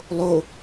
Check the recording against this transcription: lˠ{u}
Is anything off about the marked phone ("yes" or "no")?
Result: yes